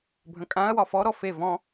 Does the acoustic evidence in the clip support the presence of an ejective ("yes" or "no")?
yes